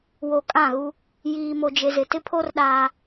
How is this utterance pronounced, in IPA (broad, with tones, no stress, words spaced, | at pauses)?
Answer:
wo˨ kʼã˦˨ɣu˦ | jiː˨mo˨d͡ʒe˨ zɪ˨tɪ˦pʰo˦r ɗaː˦